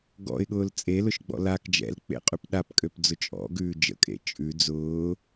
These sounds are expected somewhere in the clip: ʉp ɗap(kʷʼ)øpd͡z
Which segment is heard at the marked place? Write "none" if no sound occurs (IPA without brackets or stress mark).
kʼ